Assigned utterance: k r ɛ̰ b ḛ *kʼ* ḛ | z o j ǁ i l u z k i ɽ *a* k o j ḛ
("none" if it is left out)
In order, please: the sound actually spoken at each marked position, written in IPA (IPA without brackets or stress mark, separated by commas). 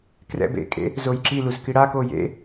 kʼ, a